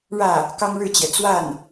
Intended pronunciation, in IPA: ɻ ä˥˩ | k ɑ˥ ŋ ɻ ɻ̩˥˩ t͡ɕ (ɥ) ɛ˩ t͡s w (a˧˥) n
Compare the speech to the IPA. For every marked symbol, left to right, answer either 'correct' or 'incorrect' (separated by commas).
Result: incorrect, incorrect